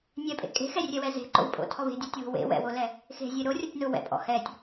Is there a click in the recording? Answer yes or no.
yes